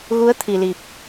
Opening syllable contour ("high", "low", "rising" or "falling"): rising